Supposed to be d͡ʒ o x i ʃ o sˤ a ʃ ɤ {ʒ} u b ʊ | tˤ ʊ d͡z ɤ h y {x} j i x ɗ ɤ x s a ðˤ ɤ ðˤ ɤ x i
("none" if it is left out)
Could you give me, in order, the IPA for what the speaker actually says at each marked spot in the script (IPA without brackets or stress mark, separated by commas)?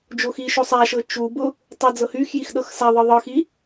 t͡ʃ, x